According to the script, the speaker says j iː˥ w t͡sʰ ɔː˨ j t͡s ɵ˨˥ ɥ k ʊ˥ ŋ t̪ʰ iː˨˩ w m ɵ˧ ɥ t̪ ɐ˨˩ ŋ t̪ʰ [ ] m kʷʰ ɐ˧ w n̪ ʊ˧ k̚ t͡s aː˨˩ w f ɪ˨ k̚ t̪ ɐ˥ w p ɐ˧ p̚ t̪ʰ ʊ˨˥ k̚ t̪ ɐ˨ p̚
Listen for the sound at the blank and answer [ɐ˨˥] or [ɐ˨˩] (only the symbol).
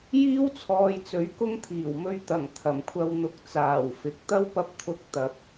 ɐ˨˩